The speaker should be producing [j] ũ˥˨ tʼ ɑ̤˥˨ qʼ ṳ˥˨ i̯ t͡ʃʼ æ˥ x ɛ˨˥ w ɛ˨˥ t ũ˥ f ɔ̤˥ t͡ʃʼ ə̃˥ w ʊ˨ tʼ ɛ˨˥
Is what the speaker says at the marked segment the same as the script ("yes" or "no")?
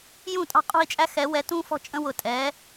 yes